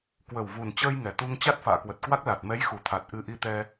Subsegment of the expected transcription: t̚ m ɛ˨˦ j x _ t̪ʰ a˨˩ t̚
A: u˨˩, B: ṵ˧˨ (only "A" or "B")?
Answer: A